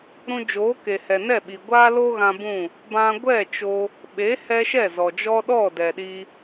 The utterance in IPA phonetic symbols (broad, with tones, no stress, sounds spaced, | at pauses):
ɾ ũ˧ d͡ʒ oː˨˦ k e˨ h ɛ˨ n ɛ˦˨ ɓ i˨ ɡʷ aː˦ l o˦ ɣ ã˧ b ũ˦˨ | b ã˧ ɡʷ ɛ˦˨ t͡ʃ o˧ | ɓ e˨˦ h ɛ˧ ʃ ɛ˦˨ z ɔ˨ d͡ʒ ɔ˦ ɗ ɔ˦˨ d ɛ˨ ɗ i˧